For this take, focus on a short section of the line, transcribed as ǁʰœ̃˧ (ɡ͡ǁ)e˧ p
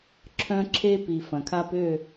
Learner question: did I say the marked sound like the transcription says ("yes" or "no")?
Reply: no